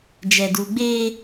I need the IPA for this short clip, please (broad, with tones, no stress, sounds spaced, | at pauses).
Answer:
d͡ʒ ɛ˨ d u˨ ɡ͡b eː˦